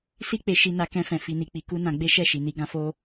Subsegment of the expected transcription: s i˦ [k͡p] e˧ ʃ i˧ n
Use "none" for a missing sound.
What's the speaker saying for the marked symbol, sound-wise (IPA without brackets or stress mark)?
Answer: k͡p